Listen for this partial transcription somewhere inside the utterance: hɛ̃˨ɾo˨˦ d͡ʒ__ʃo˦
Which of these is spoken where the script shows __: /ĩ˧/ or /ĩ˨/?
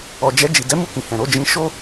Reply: ĩ˧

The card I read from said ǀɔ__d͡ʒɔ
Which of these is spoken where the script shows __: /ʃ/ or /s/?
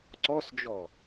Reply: s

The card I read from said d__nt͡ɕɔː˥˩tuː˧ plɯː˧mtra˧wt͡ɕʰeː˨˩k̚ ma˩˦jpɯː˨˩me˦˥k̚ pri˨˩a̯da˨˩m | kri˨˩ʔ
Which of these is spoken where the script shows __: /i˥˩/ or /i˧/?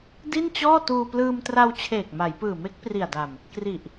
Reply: i˥˩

